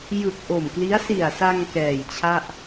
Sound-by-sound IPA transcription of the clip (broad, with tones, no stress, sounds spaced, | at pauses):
j ɯ˨˩ k̚ ʔ o˨˩ m k l i˦˥ a̯ s i˨˩ a̯ s a˧ ŋ k ɛː˨˩ j t͡ɕʰ a˥˩ ʔ